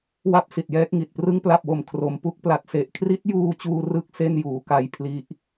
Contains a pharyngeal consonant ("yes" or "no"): no